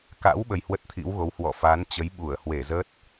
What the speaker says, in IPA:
ka̰˧˥w ɓə˧jhwə˦˥t̚t̪ʰḭ˧˥wɣo˨˦w hwɔ̰˧˨ fa˨˦nt͡ɕə˨˦j ɓu˧˩ə̯hwe˧˩zə˦˥t̚

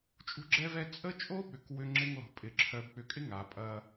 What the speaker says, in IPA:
t͡ʃʼṳ˦ɡ͡ǁɛ˦vɛ˦ t͡sʼə˦t͡ʃʼo˦ɓʏ˨k wʏ˦ŋ͡ǁɪ˦ŋ lɔ̤˨pʼɪ˨ ǁʰœ˨bk͡pʏ˨kʼɪ˦ ŋa˨pʼɐ˦

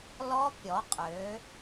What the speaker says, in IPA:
lɔ˦˥pʲɔ˨˦qʼø˨˦

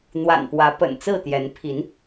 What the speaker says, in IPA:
n̪wa̰˨˩npwä˨˦ pə̰˨˩nt͡sɹ̩˥˨t̪jɛ˨˦n pʰi˨˦n

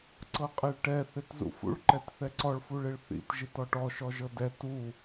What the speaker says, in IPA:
ǀɤqʼɛɭʈɛ θetzṵfṵɭǃɛt θɛǀɔɭfuɭeɭ θḭtʒit ɔʈɔʃɔʒɤ dɛ tu

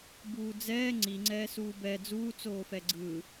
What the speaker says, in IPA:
buːd͡zɛː ŋ͡ǀiŋ͡ǀɛːsuː bɛ d͡zuː t͡soːfɛɡ͡ǀɯː

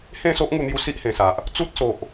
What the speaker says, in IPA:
hẽ˥˧so˦ʔŋu˧n̪ju˧ si˦ʔhẽ˨˩sa˨ʔ | t͡su˦t̚so˨ʔ

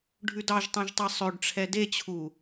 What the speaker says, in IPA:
ɖʱʉdɑʒtˤẽʒtˤa sˤøɖʈ͡ʂʰɛ det͡ɕʰu

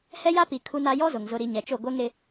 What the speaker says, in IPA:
hɛ˦ja˦pi˨ kʰu˦na˦ jɔ˦zʊ˨ŋ zʊ˨ɾi˨ ɲɛ˨t͡ʃo˦˨ ɡʷɛ˦ŋɾɪ˦

